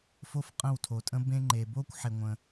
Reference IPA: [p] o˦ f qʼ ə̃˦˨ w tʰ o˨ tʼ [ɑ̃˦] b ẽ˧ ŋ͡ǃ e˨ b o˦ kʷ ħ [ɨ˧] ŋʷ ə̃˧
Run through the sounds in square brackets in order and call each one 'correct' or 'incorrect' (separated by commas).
incorrect, incorrect, incorrect